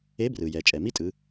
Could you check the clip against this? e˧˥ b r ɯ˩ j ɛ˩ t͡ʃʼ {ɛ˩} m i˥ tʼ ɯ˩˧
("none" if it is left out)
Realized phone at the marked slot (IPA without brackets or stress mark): ɛ˩